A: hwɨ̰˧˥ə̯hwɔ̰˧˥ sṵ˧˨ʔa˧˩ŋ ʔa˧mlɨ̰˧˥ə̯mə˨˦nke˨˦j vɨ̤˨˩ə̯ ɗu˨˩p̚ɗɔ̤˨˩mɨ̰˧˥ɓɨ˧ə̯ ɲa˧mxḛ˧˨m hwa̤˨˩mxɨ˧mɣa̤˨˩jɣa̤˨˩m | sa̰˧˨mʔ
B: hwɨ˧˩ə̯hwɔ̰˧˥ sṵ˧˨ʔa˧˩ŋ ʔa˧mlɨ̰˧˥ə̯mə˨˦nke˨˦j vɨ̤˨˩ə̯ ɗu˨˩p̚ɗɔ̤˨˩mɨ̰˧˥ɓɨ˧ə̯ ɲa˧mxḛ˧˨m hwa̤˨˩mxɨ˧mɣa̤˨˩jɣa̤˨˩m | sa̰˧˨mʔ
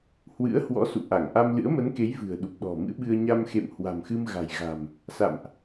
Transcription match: A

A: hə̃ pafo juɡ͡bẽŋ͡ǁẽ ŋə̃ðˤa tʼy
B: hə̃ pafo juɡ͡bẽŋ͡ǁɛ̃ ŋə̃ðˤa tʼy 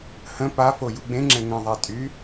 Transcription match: B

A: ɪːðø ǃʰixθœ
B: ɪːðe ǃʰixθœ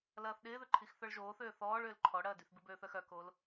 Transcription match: A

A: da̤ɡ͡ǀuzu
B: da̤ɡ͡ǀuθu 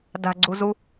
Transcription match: A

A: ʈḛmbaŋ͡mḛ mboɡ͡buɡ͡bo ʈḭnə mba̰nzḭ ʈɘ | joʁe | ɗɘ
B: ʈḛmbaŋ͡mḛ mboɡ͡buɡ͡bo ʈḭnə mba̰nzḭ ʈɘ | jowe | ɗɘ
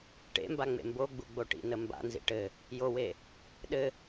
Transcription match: B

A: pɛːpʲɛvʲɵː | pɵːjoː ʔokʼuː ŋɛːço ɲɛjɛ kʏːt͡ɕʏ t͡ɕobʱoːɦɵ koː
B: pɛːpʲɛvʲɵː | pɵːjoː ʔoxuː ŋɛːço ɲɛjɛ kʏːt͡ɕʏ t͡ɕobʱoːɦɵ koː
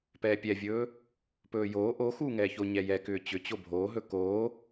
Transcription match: B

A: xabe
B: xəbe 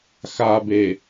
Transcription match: A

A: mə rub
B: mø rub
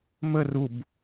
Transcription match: A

